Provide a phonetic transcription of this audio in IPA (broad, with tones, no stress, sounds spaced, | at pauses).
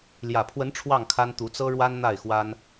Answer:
l j ä˨˩ pʰ w ə˨˦ n ʈ͡ʂʰ w ɑ˥˨ ŋ kʰ a˦ n t̪ u˨˦ t͡s ɤ˦ ɻ w a˦ n n̪ a˥˨ ɪ̯ x w a˦ n